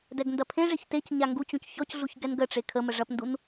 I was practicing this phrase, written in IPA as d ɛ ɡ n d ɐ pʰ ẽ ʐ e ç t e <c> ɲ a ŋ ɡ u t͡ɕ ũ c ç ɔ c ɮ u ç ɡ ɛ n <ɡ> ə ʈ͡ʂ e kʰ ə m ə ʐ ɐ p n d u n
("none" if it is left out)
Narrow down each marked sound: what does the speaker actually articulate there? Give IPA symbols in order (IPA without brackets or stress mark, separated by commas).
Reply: c, ɡ